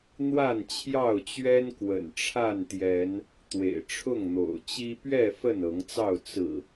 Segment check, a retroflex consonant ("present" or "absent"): present